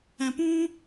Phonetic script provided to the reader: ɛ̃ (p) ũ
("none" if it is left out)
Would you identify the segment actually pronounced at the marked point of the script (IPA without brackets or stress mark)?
p